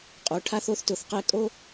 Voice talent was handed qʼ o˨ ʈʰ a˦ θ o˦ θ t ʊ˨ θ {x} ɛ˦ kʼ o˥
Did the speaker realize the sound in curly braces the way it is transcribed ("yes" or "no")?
no